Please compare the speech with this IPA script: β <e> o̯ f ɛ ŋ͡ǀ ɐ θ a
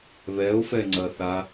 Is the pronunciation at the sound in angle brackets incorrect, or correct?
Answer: incorrect